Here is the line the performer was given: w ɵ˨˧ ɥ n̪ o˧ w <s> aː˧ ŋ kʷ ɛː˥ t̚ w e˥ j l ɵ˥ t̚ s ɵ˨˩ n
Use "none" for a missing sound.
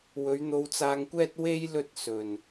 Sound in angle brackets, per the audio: t͡s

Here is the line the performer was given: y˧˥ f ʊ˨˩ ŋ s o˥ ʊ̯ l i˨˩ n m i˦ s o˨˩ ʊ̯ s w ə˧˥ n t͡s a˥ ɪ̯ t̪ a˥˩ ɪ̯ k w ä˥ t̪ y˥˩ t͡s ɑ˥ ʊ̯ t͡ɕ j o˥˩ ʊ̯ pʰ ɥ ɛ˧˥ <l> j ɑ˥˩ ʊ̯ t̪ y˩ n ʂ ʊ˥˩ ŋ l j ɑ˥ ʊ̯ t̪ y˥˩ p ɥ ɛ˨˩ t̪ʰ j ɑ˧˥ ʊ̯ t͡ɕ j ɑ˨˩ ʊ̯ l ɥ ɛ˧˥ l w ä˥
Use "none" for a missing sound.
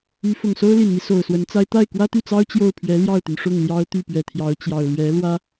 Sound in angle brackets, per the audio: l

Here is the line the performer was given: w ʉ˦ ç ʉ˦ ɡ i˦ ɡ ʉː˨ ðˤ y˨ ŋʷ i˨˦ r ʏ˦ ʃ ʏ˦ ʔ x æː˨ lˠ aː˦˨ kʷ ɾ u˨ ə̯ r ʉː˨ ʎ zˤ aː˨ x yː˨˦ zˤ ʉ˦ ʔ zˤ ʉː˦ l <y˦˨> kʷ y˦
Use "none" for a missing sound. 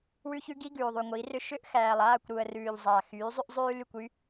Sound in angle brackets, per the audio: y˦˨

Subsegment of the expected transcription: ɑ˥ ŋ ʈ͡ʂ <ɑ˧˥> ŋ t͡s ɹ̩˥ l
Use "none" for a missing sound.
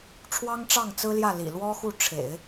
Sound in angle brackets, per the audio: ɑ˥˩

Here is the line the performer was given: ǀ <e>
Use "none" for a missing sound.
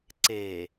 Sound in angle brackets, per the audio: e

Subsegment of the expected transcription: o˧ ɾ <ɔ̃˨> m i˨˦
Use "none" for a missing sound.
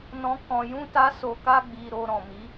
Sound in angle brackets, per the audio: ɔ̃˨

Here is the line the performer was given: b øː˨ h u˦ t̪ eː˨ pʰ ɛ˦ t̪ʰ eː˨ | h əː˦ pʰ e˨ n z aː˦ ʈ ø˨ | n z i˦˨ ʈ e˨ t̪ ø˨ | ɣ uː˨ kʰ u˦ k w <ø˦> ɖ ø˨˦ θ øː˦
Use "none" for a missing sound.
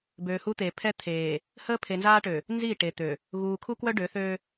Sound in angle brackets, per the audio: œ˦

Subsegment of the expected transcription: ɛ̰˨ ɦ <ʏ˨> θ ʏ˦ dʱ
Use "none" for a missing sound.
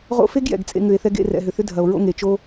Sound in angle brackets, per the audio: ʏ˨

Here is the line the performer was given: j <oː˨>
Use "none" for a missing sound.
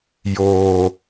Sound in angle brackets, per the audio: oː˨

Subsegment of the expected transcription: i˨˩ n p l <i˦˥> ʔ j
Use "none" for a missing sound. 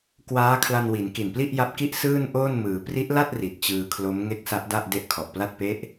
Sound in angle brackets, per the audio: i˥˩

